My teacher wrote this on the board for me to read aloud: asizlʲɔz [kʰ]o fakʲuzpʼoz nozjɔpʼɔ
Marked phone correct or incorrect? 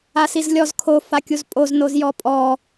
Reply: correct